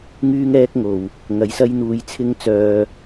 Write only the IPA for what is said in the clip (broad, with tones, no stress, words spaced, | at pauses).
ŋyː˥ŋɛː˥k̚ŋo˨˩w | ŋɐ˨˥jsɐ˥jn̪uː˧jt͡sʰɪ˥ŋ t͡sœː˧